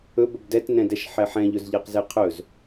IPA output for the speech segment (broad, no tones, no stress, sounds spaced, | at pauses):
ɵ b ɵ b d ɛ t n ɛ̃ d ɛ ʃ ħ ɛ ħ ɛ̃ ʎ ɵ z ʎ e q z e qʰ ɵ z